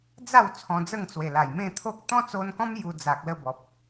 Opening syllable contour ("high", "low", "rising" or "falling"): falling